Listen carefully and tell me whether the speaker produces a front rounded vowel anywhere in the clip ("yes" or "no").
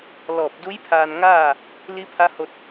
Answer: no